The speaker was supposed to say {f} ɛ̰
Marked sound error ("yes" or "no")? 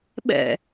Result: yes